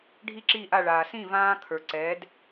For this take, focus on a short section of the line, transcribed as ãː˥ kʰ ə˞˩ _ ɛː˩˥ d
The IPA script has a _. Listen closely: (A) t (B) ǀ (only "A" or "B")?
B